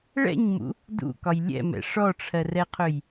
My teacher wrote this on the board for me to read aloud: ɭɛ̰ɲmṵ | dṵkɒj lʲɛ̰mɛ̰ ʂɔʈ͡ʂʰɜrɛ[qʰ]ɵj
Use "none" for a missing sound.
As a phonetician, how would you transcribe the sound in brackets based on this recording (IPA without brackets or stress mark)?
qʰ